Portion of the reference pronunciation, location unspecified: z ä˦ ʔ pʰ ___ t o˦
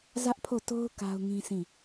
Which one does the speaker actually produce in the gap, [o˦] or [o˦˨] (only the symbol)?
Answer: o˦˨